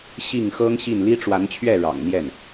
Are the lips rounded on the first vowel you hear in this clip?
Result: no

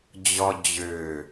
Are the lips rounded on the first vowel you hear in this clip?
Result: yes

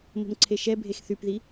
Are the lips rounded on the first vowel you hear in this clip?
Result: yes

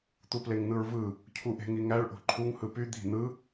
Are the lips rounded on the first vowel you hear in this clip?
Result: yes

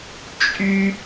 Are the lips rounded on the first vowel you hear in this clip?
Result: yes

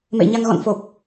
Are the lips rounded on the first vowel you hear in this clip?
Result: no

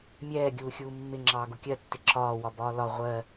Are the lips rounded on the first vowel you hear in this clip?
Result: no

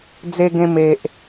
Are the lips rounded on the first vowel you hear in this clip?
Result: no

